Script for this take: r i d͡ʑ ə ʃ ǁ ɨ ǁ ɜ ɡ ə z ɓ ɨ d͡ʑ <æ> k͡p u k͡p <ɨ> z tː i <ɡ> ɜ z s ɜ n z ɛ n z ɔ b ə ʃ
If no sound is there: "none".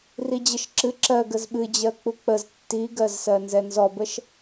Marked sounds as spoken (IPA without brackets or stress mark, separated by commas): ɜ, ə, ɡ